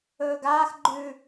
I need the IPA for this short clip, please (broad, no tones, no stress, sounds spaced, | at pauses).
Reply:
ɵː ɡ aː x ɡ͡ǃ ʉ